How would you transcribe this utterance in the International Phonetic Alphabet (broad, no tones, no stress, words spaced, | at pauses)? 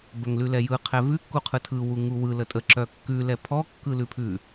bœŋlʉlɛjɯ qʰɛvʉ kːuqʰɯtʰɯ wuŋuwɯ lətʼə ǁœkːʉ lɛpʰɔ kːɯlʉpʰʉ